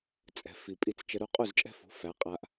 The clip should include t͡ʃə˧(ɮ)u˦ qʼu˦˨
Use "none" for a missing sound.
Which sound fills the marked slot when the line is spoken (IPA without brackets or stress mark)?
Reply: ɾ